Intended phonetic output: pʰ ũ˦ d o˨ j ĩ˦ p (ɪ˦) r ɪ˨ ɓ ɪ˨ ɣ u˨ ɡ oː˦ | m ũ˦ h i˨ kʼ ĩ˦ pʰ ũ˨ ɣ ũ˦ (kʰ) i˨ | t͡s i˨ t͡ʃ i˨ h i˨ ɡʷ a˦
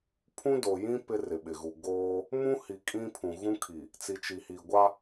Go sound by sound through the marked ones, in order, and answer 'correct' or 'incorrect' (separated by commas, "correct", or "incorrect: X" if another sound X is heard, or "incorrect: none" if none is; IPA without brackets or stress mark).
correct, correct